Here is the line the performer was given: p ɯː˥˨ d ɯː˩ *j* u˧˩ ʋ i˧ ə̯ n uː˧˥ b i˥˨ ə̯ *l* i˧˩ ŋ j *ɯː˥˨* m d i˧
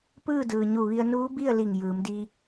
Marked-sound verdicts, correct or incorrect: incorrect, correct, incorrect

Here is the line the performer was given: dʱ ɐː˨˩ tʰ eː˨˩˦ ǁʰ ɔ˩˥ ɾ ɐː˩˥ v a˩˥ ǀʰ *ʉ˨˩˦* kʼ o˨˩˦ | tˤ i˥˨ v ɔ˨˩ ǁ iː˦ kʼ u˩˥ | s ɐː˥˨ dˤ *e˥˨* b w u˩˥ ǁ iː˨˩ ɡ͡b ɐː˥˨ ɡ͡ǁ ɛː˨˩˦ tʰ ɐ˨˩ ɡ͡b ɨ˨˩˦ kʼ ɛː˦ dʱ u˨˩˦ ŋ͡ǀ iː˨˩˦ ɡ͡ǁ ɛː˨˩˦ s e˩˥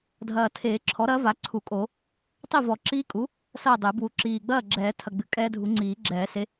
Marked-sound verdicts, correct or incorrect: incorrect, incorrect

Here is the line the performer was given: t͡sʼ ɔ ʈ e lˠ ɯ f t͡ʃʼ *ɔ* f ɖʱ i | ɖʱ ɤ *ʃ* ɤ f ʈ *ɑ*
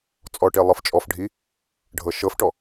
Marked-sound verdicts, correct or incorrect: correct, correct, incorrect

